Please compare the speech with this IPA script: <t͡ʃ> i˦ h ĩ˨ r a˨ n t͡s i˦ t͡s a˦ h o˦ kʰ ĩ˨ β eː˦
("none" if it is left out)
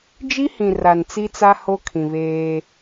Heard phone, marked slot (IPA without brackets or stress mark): d͡ʒ